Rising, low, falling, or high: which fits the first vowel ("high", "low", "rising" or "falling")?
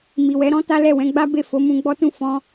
low